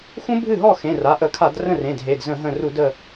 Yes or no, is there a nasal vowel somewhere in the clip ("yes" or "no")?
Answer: yes